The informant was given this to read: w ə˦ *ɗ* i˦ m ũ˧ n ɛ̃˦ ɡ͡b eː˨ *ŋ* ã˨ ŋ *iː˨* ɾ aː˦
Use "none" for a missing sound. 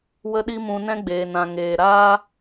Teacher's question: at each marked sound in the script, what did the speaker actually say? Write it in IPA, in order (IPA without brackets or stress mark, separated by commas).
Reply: ɗ, n, eː˨